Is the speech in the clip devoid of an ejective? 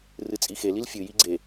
no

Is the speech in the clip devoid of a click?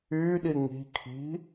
yes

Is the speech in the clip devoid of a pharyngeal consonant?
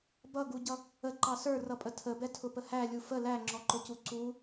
yes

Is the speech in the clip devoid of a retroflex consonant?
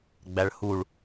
no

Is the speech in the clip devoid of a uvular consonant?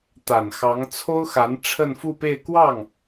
yes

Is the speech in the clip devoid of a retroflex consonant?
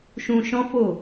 yes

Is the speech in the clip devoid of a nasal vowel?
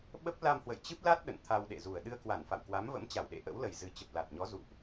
yes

